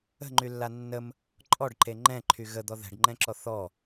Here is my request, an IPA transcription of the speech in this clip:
ə̤ ŋ͡ǃ y lː a nː ə m | ǃʼ ɔ ɖ ǃ e ŋ͡ǃ ɛ̃ ǃʰ y ɣ ə d̪ ɔ ð ɛ̤ ɖ ŋ͡ǃ ɛ̃ ǁ ɔ θ ɔ

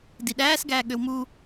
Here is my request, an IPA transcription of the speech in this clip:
d i ɗ æː s ɡ æː ɠ ø w m u

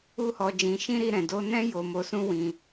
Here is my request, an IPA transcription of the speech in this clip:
u˦ h ɔ˧ d͡ʒ ĩ˧ ʃ ĩ˦ ɾ i˧ ɾ ɛ̃˨ d o˧ n ɛ̃˦ j o˦ m o˧ s ũ˦ w ĩ˦

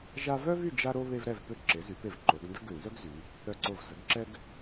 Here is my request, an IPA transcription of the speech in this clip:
ʒ a˥ v œ˥ v y˥˧ d͡ʒ a˥ ɾ o˥ β e˥ v ɾ ɛ˥˧ v p ø˥˧ ǁ e˩˧ z y˩˧ p e˧˩ v ǃ o˩˧ ɡ n d ə˥ ɡ ø˧˩ n z œ˥ ɡ z y˩˧ | ɾ œ˧˩ ǀ o˧˩ v z ə˩˧ ɡ ǁ ɛ˥ ɡ

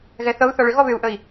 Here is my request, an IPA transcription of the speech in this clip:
ɣ ɛ θ ɤ u̯ θ ɔ ɭ ʏ ɣ ɔ β ʏ u̯ ʔ ə i̯

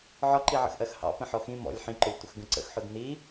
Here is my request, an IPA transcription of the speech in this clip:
ʕ ɒ ǃ i ʕ ə̰ x ʔ ɜ x h ɑ̰ p ə̃ ħ ɔ x ĩ m ɔ̰ lʲ ħ ĩ ǃ ʊ lʲ tʷ ə x ɡ ə̃ ǀ ə̰ x ħ ʊ d n i

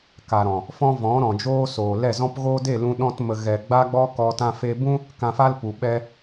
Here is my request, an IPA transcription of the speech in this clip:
k a˨ ɾ ɔ̃˨ | f ɔ̃˦ v ɔ̃˨˦ ɾ ɔ̃˨ d͡ʒ oː˧ s oː˨ l ɛ˦˨ z ɔ̃˦ p ɣ oː˦ d e˦˨ l ũ˧ ɗ ɔ̃˧ t m ə˧ ɣ ɛ˨ ɡ͡b a˦ ɡ͡b ɔ˦ k ɔ˧ t ã˧ f e˧ b ũ˦ | k ã˧ f a˦ l p u˨ ɓ ɛ˧

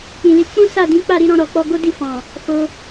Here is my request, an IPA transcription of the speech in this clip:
k͡p ĩ˨ l i˨˦ k͡p ũ˦ s a˦˨ d ĩ˨˦ k͡p a˦˨ ɾ i˨˦ ɾ ɔ̃˧ ɾ ɔ˨ k͡p ɔ˧ ɡ o˦ d i˦˨ f ɔ̃˨ | f o˧

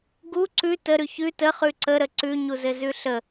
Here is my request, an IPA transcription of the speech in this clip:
ɡ u ǀ ʉ t ə ɾ ʉ ç ʉ t ə χ ʉ ǀ ə ɾ ə ǀ ʉ ɲ u z ɘ z ʉ ɬ ə

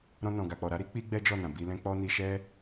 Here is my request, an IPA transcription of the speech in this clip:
ɾ ɔ̃˧ n ɔ̃˨ ɡ a˨ k͡p ɔ˨ ɾ a˨˦ ɾ i˦ k͡p i˦ ɡ͡b ɛ˦ d͡ʒ ɔ˦˨ n ã˨ b i˧ l ɛ̃˦ k͡p ɔ˦ n i˧ ʃ ɛ˦

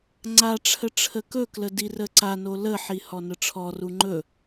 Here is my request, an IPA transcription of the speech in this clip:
ŋ͡ǀ a ʈ͡ʂʰ ə ʈ͡ʂʰ ə k ɵ k l ə d i r ə ǀ a n o l ə ħ i h ɔ n ə ʈ͡ʂʰ ɔ r u ŋ͡ǃ ɵ

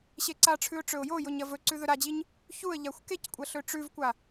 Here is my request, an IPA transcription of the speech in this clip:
ɕ e ǀ a ʈ͡ʂʰ ʉ ʊ̯ ʈ͡ʂ ɵ ʊ̯ j o j o ɲ ɐ v ɵ ǀ ʉ ð ɵ ɾ a d͡ʑ i ɲ | ç u ə̯ ʎ a xʷ k e c kʷʼ ɐ ɬ ɵ ʈ͡ʂ ʉ v kʷ a

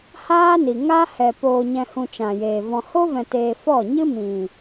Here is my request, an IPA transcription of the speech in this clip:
h aː˦ n i˨ ŋ aː˦ h ɛ˨ p oː˨ ɲ ɛ̃˨ h ũ˨ t͡ʃ ã˨ j eː˨ v ɔ̃˨ h o˦ v ɛ̃˨ t eː˨ f ɔ˦˨ ɲ ɨ˦ m ĩ˨

